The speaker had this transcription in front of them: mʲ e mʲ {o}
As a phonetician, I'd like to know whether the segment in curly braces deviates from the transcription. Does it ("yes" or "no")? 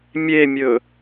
yes